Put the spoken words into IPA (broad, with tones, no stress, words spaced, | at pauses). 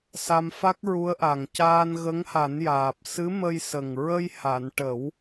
sa˧mfa˦˥k̚ɹu˧˥ə̯ʔa˨˩ŋ caː˧nɣə˧˥ŋha˨˩˦njaː˨˩p̚ sɨ˧˥mə˧jsə˨˩ŋ ɹə˧jha˨˩˨n ʈə˨˩˦w